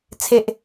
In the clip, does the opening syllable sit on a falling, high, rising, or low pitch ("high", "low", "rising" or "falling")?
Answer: low